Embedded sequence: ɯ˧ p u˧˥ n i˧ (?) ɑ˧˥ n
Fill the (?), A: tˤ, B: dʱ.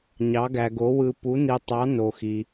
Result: A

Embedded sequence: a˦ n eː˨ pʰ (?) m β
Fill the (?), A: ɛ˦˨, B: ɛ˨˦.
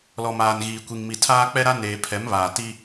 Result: B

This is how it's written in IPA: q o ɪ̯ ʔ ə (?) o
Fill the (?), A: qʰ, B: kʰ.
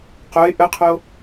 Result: A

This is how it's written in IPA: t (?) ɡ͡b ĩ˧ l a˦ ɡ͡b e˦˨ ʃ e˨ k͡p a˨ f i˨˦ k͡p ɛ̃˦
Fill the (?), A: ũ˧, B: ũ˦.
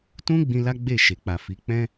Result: B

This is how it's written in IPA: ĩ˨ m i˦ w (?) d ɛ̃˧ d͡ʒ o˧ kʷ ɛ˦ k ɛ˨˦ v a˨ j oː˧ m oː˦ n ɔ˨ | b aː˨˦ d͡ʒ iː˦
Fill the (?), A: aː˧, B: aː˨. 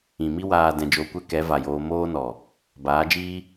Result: A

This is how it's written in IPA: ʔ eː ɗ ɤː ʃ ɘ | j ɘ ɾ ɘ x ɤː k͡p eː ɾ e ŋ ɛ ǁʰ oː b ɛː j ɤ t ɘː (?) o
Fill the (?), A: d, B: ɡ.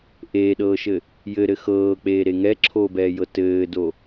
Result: A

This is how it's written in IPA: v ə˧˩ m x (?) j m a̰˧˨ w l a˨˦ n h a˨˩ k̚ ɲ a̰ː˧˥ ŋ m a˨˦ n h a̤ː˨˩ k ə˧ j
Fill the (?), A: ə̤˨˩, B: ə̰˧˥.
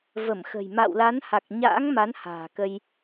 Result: A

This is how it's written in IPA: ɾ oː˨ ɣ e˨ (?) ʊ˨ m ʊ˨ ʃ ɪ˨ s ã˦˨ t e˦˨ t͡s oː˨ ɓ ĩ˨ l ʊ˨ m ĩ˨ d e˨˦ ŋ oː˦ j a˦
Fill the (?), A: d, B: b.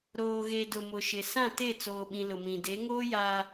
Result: A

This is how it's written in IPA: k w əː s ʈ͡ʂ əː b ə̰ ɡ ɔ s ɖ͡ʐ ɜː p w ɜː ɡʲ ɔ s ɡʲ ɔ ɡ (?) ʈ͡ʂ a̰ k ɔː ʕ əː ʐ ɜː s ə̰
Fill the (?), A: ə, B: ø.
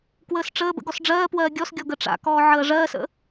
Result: A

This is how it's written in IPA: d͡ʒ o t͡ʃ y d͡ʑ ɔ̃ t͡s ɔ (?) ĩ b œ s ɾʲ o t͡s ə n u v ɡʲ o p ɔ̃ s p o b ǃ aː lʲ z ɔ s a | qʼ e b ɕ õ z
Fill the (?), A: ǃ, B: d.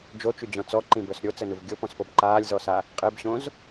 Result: A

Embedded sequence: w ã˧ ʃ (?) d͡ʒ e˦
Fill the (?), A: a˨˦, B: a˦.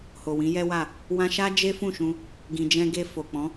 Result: B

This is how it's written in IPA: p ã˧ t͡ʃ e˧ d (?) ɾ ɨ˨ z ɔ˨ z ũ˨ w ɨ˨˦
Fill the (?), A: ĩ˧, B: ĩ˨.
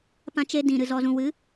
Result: B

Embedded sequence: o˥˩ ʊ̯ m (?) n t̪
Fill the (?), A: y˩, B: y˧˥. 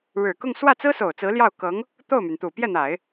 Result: A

